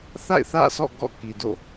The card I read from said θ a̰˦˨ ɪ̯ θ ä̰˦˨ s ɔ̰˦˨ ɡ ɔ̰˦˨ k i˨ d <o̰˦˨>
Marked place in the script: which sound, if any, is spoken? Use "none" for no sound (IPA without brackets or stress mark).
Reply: o̰˦˨